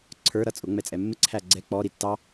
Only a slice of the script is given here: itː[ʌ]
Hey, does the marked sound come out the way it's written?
no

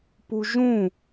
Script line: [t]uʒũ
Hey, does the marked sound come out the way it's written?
no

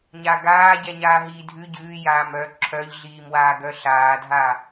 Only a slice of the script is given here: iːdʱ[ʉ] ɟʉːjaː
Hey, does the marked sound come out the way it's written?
yes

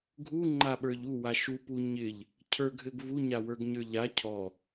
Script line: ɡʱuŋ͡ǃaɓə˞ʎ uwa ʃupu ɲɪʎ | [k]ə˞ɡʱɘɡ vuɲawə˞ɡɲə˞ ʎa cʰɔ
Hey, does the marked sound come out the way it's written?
no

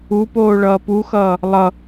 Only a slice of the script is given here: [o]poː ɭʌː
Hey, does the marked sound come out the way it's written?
no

